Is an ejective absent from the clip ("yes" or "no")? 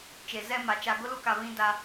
yes